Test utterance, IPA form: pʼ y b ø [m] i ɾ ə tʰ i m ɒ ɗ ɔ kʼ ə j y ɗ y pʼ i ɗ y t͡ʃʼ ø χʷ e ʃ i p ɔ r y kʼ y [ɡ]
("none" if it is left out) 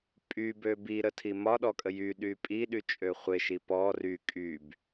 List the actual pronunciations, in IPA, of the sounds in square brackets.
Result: b, b

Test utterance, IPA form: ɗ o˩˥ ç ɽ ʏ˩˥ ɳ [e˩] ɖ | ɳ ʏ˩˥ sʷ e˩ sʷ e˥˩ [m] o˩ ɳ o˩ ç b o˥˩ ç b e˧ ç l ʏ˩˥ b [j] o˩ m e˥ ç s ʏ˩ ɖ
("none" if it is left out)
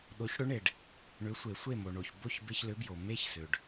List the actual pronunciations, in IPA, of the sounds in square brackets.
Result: e˩, m, j

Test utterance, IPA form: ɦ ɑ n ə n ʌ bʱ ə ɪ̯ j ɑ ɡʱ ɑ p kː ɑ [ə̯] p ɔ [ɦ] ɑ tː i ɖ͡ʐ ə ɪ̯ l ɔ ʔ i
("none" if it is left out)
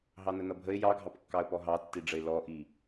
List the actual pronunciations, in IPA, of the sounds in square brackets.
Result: ə̯, ɦ

